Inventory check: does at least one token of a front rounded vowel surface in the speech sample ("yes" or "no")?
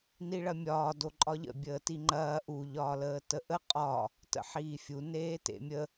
no